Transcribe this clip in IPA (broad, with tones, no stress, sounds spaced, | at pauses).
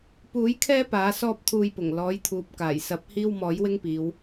p uː˨˥ j kʰ ɛː˥ p aː˨˥ s ɔː˥ p̚ t̪ʰ uː˧ j p ʊ˨˩ ŋ l ɔː˨˥ j t̪ʰ uː˨ p̚ k aː˨˩ j s ɐ˨˥ p̚ h iː˥ w m ɔː˨˥ j w ɪ˥ ŋ p iː˨˧ w